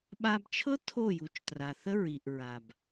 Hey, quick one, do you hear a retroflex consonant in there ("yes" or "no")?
no